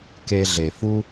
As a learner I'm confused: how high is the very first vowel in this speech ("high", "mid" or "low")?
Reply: mid